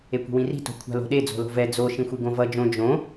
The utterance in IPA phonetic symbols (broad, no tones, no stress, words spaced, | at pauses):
ekʷi̤wĩri̤ to̤kʷʰa̤lo̤ɗe d͡zo̤lo̤vɛ d͡zo ʃĩxʷiɡõvʌ d͡ʒõ d͡ʒõ